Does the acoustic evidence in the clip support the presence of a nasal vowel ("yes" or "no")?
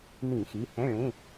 yes